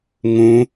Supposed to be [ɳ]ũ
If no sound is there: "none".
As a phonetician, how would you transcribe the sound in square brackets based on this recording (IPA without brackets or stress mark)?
ŋ